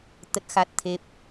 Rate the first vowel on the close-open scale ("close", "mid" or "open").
mid